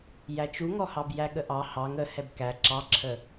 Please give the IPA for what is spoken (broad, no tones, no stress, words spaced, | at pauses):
jæt͡ʃuŋɔhɑb jæɠəʔɑ hɑŋ ə hɛbkæ ǁɑǁʰə